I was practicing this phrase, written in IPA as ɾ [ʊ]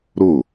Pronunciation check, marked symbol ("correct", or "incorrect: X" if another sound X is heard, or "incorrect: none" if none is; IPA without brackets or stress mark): correct